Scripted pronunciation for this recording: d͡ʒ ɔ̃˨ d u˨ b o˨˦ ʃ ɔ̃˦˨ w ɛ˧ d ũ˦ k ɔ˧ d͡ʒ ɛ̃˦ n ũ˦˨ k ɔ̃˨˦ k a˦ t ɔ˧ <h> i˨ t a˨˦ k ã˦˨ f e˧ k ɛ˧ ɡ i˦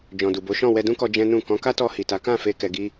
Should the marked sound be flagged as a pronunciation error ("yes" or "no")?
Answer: no